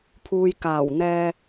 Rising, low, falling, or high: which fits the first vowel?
low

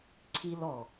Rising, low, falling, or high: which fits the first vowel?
high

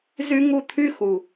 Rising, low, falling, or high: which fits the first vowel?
high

